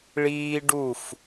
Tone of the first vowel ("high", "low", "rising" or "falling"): high